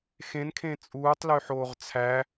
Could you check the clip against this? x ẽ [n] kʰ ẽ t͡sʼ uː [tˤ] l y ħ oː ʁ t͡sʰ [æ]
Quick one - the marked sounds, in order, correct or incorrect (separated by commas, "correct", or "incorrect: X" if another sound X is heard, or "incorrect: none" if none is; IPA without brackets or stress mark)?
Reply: correct, correct, correct